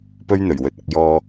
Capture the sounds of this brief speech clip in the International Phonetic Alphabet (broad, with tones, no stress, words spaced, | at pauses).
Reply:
pɵ˥ɥn̪ɵ˨˩ɥwɵ˨t̚ɐ˧k̚ jɔː˧